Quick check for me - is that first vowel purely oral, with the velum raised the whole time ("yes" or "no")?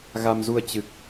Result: yes